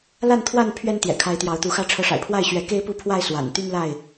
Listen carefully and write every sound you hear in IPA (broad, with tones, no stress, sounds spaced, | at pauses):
l a˥˨ n t̪ʰ w a˥˨ n pʰ ɥ ɛ˦ n t̪ j ɛ̰˨˩ kʰ a˨˦ ɪ̯ t̪ j ɑ˨˦ ʊ̯ t̪ u˨˦ x ä˦ ʈ͡ʂʰ ɤ˨˦ ʂ a̰˨˩ ɪ̯ pʰ w a˥˨ ɪ̯ ɕ ɥ ɛ˨˦ k e˦ ɪ̯ p u˥˨ pʰ w a˥˨ ɪ̯ s w a̰˨˩ n t̪ y˦ n l a˥˨ ɪ̯